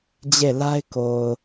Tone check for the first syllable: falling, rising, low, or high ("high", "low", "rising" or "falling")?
falling